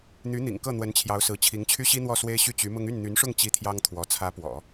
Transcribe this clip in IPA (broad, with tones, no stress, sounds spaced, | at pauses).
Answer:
n̪ y˧˥ n̪ ḭ˨˩ ŋ k ɤ˥˩ n̪ w ə˧˥ n t͡ɕʰ j ɑ˧˥ ʊ̯ s ɹ̩˧˥ t͡ɕʰ i˧˥ ŋ t͡ɕʰ y˥ ɕ i˥ n̪ w ɔ˥˩ s w e˥ ɪ̯ ɕ y˥˩ t͡ɕ y˧˥ m ʊ˥ ŋ y˥˩ n n̪ y˧˥ n ʂ ʊ˥˧ ŋ t͡ɕ i˥˩ t̪ʰ j ɑ˥ ŋ t̪ʰ w ɔ˧˥ t͡sʰ ä˧˥ p w ɔ̰˨˩˦